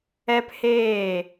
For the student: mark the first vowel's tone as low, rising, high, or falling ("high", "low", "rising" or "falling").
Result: high